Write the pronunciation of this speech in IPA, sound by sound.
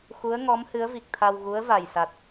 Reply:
xu˧˥ə̯ ŋɔ˧˥mhɨ˧˥ə̯vi˨˩k̚t̪ʰa˧w ɣu˧˥ə̯va˨˩jsa˨˩t̚

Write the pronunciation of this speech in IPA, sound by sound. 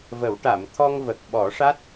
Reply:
və˨˩˦wʈa˨˩˨m t̪ʰɔ˧ŋvə˨˩k̚ɓɔ˨˩˦ʂa˦˥t̚

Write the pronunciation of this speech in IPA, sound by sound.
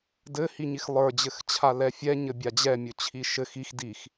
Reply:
dɘ hiɲixlˠə˞ d͡ʑɘxt͡ɕʰalɛfʲɛ ɲɘbʲad͡ʑɛ mʲɵt͡ɕʰiʃɘx ix dix

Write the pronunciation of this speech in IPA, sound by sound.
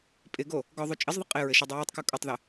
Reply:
pʼɪɡo | ɡɔðˤu t͡ʃʼɪzðˤɪ qʼɪɹɘ ʃudˤuwutˤku kʼutˤðɘ

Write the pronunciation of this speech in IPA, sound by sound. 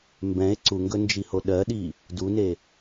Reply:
mbɛ̃e̯ ǀuŋɡɵnd͡ʒiho ɗɜɗi | dune

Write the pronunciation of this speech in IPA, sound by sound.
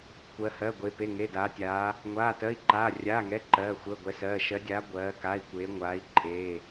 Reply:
kʷɜ˧˥hɜ˧˥˧ɡʷe˧˥ pe˧˥˧ŋe˧˥˧daː˧˥tʲaː˧˥ | ŋʷaː˧˥˧tɜ˧˥˧i̯ǃaː˧˥˧ rʲaː˧˥˧ŋɛ˧˥˧ ǃɜː˧˥˧ xʷɜ˧˥˧ɡʷɛ˧˥sɜː˧˥˧ ʃɜ˧˥dʲaː˧˥ ɡʷɜː˧˥ka˧˥˧i̯kʷeː˧˥ŋʷaː˧˥i̯ ǃʼeː˧˥˧

